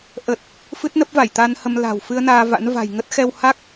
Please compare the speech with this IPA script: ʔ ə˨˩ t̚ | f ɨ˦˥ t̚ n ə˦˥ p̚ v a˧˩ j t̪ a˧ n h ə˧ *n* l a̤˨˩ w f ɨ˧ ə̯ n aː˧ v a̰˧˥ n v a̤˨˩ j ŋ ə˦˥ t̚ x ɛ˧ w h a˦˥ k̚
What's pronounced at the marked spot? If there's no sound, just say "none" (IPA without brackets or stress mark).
m